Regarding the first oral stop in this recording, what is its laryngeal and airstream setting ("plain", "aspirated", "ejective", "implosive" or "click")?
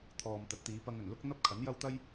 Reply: aspirated